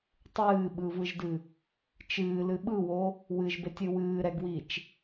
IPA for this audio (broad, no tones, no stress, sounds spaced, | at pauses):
tˤ ɨː ɓ ɯ v ɯ ʒ d ɨ | t͡ʃ ɨː l ɨ ɓ ɯ w o | w ɨ ʒ b e tʲ ɨ w ɨː ɾ ɛ ɡ w i t͡ʃ